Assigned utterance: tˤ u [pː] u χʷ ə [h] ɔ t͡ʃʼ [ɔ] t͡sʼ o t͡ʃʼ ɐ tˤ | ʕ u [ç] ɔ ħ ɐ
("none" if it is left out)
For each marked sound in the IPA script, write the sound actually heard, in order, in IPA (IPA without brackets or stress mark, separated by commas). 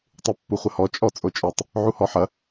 pː, h, ɔ, h